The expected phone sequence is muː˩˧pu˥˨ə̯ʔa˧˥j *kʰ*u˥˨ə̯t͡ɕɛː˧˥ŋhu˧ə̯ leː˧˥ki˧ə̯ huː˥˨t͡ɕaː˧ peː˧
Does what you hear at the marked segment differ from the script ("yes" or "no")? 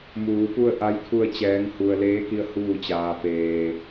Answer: no